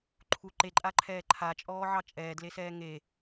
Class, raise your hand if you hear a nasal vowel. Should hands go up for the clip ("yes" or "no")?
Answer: no